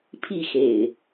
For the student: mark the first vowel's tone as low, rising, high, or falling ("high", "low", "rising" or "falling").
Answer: falling